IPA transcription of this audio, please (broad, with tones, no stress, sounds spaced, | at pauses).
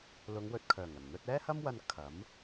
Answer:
l ʊ˨˧ ŋ w ɵ˨ t̚ kʰ œː˨˩ ŋ ɐ˨˩ n n̪ ɵ˧ t̚ ɛː˥ h ɐ˥ m w ɐ˧ n kʰ ɐ˨˥ m